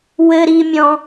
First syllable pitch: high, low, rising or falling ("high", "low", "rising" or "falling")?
high